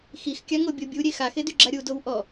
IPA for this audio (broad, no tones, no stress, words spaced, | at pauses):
xixkʲaŋobʲo bʲuɾʲe xaxedyɡ͡ǁa ɾʲudow ʔɔ